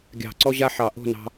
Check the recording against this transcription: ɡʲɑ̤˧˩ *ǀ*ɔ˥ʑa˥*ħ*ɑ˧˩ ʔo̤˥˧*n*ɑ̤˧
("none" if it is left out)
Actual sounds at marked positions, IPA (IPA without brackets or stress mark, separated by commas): ǀ, ħ, n